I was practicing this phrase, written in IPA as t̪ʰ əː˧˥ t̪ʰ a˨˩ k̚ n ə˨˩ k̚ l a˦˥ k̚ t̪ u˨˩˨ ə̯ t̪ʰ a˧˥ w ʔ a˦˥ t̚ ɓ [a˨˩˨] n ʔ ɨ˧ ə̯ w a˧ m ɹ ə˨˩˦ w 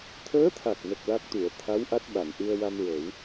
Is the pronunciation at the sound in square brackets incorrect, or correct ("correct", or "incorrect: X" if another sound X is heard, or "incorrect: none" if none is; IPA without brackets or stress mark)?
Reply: correct